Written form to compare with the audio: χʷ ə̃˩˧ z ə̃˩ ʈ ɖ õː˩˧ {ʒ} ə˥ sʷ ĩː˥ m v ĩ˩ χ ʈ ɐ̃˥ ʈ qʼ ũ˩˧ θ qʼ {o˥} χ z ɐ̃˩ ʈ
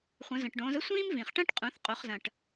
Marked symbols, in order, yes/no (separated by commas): no, no